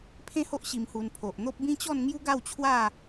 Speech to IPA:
pʰẽ˥˧ho˦ʔ ɕi˧mhu˧npʰo˨ʔn̪o˦p̚ bĩ˦t͡ɕɔ˥˧n ŋju˦ɡa˥˧wt͡ɕʰwa˥˧

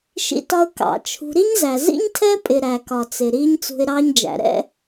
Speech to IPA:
ʃḭ˧tɒ˧ʊ̯ kɑ̰˨t͡ʃʰṳ˧ ɾi˦ɲzæ˨ zḭ˦ɲtʰɛ˦pʼɪ˨ ɾæ˨kɒ˨t͡sɪ˨ ɾiː˦ɲt͡sṳ˧ɪ̯ɾɑː˦ɲd͡ʒæ̰˨ ɾɛ̰˦

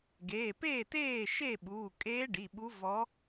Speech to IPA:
ɡeː˩˧˩peː˥˩teː˥˩ ʃe˥˩ɓuː˩˧˩kʼeː˧˥ ɖi˩˧˩ɓu˧˥ vɔ˧˥

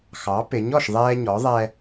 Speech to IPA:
xɑ˩˥pɪ˩˥ɲ ɔ˥˩ʃðˤɛː˦ɲɔ˩˥ ðˤɛ˦

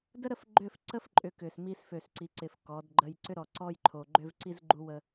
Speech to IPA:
də˦ɾə˦˨fɡ͡ǃʏ˦˨f ǀə˦fǃʼʏ˨ kʏ˨smi˦s fø˨sǀi˨ǀɪ˨f kɔ˨˦dɡ͡ǃə˦j ǀʏ˦ɾɔ˨ ǀɔ˦jǃʰo˨ɡ͡ǃʏ˦v ǀi˦zɡ͡ǃu˦ wə˦

